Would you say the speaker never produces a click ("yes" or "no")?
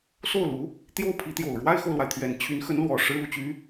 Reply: yes